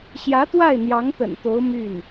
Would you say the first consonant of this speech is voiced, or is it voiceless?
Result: voiceless